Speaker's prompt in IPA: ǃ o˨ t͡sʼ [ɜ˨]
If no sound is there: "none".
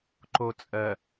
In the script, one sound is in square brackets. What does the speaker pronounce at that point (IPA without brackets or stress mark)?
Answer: ɜ˨